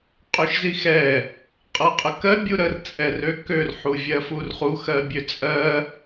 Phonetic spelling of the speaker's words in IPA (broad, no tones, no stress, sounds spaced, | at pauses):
qʼ ø ʃ z i x ɛ | qʼ ɤ qʼ ə k ɜ bʲ u ɾ ə r t͡sʼ ɛ r ø k ø r ħ u vʲ ɜ f u r χ u x ɜ bʲ ø t͡sʼ ɜ